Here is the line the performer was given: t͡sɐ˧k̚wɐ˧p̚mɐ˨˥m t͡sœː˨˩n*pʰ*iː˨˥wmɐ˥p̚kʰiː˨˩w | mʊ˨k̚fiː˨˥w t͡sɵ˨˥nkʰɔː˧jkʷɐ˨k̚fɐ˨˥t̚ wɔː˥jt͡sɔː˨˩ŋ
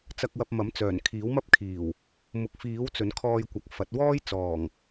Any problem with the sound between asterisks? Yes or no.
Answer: yes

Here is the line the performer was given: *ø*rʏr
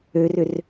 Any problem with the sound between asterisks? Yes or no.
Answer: no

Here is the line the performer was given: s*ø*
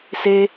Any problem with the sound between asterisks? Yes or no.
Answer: yes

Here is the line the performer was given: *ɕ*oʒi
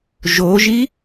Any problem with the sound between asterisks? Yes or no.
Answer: yes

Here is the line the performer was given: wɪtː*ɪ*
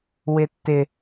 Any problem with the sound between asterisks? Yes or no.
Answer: no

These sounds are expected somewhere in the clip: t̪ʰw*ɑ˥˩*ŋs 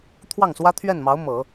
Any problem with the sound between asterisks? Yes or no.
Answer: no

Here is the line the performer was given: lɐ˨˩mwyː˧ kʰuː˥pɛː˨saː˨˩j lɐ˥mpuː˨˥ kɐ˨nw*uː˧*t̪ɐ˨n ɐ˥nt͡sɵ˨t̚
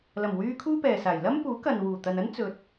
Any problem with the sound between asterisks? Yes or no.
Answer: yes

